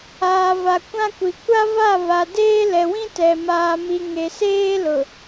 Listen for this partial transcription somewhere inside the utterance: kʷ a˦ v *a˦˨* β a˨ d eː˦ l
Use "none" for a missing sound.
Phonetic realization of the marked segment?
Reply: a˦˨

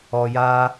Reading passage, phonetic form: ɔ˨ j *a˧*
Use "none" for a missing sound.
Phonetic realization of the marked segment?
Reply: a˧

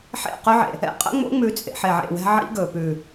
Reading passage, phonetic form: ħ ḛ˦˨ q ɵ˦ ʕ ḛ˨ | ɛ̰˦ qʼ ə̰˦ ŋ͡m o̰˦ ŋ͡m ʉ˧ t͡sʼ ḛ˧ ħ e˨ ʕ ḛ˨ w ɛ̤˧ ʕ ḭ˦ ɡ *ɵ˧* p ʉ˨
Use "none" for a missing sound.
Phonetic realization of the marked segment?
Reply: ɵ˨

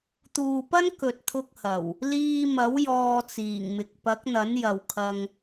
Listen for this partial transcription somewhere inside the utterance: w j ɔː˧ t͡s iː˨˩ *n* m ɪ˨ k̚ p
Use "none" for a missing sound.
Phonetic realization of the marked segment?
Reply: ŋ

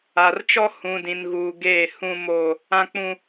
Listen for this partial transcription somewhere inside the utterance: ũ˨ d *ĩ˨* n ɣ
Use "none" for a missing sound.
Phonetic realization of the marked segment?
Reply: ĩ˨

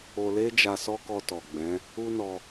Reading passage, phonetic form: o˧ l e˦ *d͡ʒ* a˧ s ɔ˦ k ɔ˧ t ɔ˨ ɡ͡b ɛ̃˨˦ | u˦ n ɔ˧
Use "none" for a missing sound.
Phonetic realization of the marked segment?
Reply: d͡ʒ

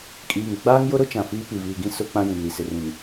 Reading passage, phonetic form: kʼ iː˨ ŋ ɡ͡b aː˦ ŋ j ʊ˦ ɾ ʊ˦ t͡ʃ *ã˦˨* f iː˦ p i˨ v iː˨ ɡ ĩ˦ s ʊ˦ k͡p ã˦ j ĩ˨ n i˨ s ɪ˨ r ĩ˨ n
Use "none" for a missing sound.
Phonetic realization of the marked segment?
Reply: ã˨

